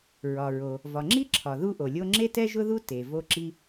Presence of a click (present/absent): present